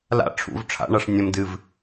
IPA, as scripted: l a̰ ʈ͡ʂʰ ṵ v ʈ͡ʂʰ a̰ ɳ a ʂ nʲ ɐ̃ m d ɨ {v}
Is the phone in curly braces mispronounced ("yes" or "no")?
no